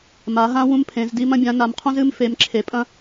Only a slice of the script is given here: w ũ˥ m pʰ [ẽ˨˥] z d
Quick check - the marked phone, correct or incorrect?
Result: correct